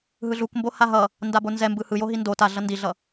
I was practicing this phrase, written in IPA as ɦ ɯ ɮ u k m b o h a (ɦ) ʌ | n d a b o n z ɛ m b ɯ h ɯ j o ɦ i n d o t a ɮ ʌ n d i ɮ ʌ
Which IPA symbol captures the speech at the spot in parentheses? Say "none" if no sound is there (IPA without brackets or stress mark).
ɦ